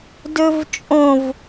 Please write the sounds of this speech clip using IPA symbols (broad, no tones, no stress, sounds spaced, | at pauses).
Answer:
d ɵ v t͡ʃʼ õ v